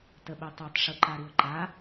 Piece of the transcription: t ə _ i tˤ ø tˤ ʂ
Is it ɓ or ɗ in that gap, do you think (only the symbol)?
ɓ